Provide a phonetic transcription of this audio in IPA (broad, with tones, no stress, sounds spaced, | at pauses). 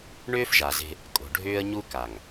ɳ ʏː˦ f ʒ a˨ z e̤˦ | kʼ o̤˨ ɖʱ ʏː˦ ə̯ ɲ u˦ k a˨ ŋ